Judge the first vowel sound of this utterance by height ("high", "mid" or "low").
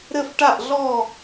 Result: mid